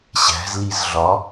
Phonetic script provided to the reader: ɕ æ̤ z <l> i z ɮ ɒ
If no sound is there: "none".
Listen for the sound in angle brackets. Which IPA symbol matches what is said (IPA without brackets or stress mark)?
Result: l